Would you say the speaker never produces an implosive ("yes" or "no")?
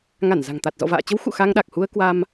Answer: no